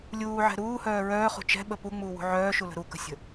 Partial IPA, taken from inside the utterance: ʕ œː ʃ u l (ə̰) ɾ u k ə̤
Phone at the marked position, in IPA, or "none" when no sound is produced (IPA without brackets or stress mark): ə̤